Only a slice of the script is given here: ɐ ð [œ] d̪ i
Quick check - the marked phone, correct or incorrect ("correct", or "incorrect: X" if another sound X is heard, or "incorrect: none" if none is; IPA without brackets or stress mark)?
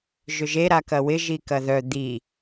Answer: correct